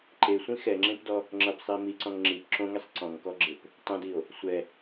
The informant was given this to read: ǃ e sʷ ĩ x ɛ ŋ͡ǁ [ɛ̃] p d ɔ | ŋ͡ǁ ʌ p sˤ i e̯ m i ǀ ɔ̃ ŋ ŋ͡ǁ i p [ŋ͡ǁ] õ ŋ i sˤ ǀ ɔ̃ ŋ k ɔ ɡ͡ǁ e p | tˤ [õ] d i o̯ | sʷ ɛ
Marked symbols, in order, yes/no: no, no, yes

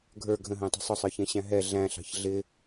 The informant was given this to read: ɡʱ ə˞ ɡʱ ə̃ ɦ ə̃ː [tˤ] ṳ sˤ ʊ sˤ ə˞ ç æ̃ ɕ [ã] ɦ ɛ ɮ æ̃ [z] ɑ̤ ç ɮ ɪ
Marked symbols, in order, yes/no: yes, no, no

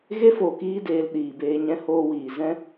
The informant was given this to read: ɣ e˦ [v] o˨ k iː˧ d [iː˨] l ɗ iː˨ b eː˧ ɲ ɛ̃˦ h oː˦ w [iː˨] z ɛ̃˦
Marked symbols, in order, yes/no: no, no, yes

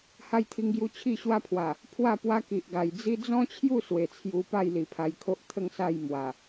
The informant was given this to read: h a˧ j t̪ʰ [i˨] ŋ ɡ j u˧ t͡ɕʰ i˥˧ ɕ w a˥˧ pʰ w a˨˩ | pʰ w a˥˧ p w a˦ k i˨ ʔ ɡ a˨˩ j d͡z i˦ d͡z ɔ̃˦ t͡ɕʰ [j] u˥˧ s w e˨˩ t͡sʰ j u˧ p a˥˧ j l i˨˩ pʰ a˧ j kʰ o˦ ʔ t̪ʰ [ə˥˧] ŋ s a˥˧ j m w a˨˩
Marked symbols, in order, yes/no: no, yes, yes

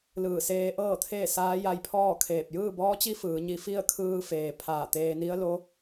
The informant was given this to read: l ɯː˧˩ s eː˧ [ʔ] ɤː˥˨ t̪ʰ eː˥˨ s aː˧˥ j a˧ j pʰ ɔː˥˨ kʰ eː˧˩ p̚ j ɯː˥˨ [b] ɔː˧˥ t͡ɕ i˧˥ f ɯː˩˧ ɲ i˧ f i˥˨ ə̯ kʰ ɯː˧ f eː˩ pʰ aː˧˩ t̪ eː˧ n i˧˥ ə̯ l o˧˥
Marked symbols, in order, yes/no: yes, yes

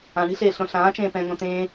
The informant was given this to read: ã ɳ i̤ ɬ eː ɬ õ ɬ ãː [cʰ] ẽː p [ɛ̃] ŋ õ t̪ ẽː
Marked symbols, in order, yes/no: no, yes

